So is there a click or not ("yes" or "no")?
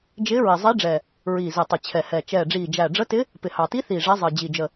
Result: no